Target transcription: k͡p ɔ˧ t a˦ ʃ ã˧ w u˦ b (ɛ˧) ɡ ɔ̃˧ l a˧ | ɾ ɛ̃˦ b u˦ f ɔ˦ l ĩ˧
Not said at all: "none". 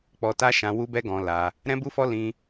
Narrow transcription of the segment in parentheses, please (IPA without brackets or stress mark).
ɛ˦